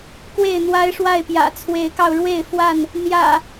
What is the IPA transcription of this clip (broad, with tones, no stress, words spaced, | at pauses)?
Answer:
kwe˥˨ɪ̯n̪wa˦ɪ̯ʂwa˥˨ɪ̯pjä̰˨˩ t͡sʰwe˨˦ɪ̯kɑ˧ʊ̯ɻwe˥˨ɪ̯fwa˥˨n | n̪jä̰˨˩